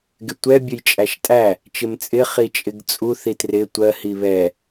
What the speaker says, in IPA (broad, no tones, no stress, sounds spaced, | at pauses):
ɡ ɪ tʷ ɛ bʲ ə j t͡ʃʼ æ ʃ tʼ æ | t͡ʃ ɪ m t͡sʼ ɪ χ i t͡ʃʼ ɪ ɡ t͡sʼ u θ i t r ɪ tʷ ɜ h i β ɛ